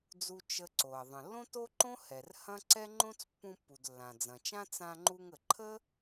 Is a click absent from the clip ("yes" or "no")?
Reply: no